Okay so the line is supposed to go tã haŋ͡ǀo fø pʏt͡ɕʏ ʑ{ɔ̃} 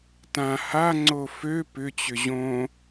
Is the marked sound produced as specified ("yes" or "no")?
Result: no